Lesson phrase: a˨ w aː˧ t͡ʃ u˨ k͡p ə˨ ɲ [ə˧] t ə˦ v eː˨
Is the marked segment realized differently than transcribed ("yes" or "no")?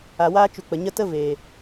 no